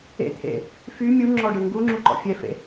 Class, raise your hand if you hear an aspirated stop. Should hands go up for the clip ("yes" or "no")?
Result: yes